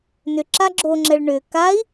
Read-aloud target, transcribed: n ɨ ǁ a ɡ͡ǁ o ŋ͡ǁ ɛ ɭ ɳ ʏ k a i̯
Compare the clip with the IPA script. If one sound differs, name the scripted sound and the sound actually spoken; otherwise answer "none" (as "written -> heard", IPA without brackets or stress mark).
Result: ɨ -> ʏ